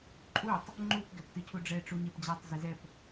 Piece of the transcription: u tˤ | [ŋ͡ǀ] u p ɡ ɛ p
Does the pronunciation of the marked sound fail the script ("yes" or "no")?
yes